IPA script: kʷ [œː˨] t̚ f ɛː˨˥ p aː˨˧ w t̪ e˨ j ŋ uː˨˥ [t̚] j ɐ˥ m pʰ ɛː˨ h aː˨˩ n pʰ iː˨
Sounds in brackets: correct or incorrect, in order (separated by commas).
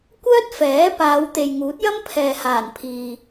incorrect, correct